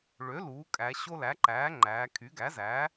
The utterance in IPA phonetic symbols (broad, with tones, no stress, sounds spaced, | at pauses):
ɭ ø˩˥ l uː˩˥ kʼ æ˩˧ ɕ o˦ l æ˩˥ ǃ æː˩˥ ŋ͡ǃ æː˩˧ kʰ y˩˥ ɡ æ˩˥ z æ˩˥